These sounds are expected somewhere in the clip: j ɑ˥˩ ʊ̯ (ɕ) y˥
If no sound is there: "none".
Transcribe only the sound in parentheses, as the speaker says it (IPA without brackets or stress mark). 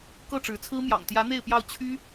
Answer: t͡ɕʰ